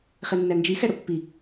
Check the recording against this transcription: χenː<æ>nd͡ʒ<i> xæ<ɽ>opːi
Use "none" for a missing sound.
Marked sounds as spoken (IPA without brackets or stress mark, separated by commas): æ, i, ɽ